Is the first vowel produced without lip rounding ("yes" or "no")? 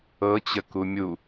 yes